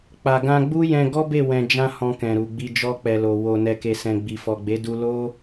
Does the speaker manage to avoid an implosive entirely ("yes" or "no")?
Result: yes